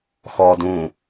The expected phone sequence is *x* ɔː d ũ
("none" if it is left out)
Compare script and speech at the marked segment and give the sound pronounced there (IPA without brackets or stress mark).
x